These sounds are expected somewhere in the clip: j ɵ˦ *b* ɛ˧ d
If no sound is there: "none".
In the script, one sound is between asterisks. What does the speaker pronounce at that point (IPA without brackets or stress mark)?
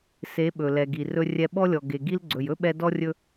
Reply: ɓ